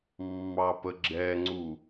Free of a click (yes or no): no